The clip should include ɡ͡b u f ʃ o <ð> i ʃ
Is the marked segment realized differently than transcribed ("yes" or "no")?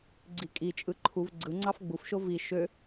yes